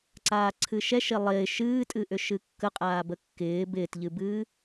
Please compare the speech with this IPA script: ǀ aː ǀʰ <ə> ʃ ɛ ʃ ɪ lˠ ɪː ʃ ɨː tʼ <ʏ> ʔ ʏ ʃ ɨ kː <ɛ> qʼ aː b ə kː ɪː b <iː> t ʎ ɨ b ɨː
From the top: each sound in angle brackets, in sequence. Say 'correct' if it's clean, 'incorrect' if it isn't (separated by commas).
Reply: incorrect, incorrect, incorrect, incorrect